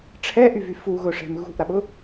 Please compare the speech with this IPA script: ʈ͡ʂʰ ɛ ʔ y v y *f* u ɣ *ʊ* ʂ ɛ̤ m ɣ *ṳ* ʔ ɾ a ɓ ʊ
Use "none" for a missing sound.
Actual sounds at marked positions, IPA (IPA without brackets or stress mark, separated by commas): f, ʊ, ṳ